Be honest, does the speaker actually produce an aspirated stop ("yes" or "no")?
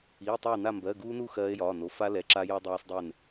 no